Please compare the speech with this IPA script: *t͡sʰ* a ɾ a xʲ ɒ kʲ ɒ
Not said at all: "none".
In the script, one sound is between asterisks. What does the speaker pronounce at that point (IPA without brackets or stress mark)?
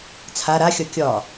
t͡sʰ